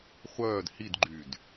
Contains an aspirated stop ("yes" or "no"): no